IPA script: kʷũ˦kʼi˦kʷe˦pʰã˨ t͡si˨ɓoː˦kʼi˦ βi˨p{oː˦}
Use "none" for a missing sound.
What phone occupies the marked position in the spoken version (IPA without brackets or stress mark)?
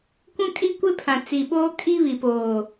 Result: oː˨